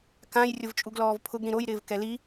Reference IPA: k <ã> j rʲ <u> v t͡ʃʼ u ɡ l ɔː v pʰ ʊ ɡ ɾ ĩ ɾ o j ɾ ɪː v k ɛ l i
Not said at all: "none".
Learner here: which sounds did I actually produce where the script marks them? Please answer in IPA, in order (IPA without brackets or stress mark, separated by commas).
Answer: ã, ʊ